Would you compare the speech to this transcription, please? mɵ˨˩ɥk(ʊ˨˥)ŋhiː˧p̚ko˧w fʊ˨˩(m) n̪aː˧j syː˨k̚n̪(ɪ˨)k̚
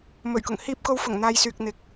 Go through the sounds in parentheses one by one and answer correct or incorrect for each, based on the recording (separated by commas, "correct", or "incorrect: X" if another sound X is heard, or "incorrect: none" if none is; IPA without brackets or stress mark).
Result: incorrect: ʊ˨˩, incorrect: ŋ, correct